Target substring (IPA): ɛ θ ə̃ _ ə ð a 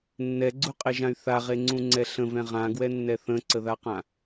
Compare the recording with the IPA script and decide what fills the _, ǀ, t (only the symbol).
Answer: ǀ